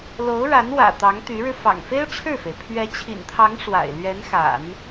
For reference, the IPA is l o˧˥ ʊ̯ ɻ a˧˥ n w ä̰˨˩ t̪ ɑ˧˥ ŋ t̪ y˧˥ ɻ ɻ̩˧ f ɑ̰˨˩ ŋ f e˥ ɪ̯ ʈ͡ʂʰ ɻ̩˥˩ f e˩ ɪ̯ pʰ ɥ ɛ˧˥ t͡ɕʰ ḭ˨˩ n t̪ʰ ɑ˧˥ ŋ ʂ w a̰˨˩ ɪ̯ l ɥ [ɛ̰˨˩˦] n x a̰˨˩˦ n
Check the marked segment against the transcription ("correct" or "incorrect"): incorrect